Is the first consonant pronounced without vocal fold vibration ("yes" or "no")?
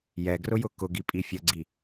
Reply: no